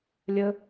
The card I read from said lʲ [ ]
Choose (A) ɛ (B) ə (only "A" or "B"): B